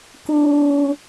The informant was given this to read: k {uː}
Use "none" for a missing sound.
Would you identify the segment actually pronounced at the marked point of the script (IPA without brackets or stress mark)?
uː